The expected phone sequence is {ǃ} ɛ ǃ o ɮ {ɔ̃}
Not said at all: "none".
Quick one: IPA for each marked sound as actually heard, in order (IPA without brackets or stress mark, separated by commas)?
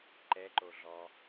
ǃ, ɔ